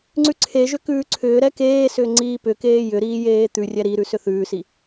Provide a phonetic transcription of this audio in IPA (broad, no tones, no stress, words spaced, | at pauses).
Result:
ŋ͡ǀʉǀʰeʒʏ kʉːǀʰʏːɾɛ keːsʏː ŋ͡ǀiːpʏkeː jʏɾiː jeːt̪ʉrʲɛ ɾiɾʉ sʏθʉːsi